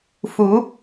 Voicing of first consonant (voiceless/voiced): voiceless